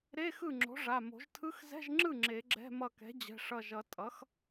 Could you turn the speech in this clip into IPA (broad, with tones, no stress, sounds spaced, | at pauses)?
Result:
ɾ e˧˥˧ x ɯ˥˩ ŋ͡ǁ o̤˩˥ ʐ a˩˧˩ m o̤˨˩˦ ʒ tʰ ɯ˧˥˧ x z ɛ̤˧˥˧ ʒ ŋ͡ǁ ɯ˥˩ ŋ͡ǁ e˨˩˦ ɡ͡ǁ ɛ̤˧˥˧ m ʌ˧˩ k ɛ̤˩˥ d͡ʑ ɛ̤˩˧˩ ʂ ʌ˧˩ ʒ ʌ˨˩˦ tʼ ʌ˩˥ x